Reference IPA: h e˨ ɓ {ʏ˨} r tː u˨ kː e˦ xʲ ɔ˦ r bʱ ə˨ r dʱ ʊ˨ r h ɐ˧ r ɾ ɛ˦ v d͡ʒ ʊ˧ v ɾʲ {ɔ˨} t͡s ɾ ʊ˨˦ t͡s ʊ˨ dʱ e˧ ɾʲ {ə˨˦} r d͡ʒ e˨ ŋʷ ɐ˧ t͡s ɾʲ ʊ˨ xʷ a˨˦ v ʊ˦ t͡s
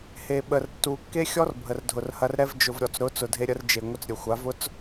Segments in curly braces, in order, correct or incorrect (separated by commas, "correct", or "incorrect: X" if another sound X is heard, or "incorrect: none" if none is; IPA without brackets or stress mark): incorrect: ə˨, correct, incorrect: ə˧